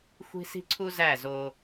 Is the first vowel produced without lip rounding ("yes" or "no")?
yes